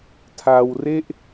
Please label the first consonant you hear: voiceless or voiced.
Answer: voiceless